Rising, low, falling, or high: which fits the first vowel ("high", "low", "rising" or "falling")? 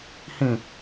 falling